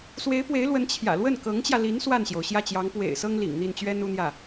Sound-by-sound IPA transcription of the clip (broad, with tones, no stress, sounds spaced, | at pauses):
s w e˧˥ ɪ̯ p w e˧˥ ɪ̯ l w ə˧˥ n t͡ɕʰ j ä̰˨˩ l w ə˥˩ n k ɤ˧˥ ŋ t͡ɕ j ä˧ l i˧˥ n s w a˥˩ n ɕ j o˩ ʊ̯ ɕ j ä˥˩ t͡ɕ j ɑ˧˥ ŋ p w ḛ˨˩ ɪ̯ s ɤ˥ ŋ l ḭ˨˩ ŋ n̪ i˥˩ n t͡ɕ ɥ ɛ˥ n u˧˥ n̪ j ä˥˩